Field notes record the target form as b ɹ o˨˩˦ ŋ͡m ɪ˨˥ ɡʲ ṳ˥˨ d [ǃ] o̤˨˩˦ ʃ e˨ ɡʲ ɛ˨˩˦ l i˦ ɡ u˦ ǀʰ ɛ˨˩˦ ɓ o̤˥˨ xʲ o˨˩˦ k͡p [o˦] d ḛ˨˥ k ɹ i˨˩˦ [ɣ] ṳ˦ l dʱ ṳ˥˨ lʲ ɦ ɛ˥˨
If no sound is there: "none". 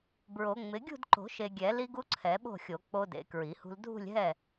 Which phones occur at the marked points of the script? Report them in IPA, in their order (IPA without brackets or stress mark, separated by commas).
ǃ, o˦, h